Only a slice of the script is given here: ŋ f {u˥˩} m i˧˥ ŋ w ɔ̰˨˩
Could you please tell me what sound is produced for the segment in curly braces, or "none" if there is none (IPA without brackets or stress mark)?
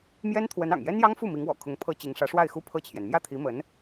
u˥˩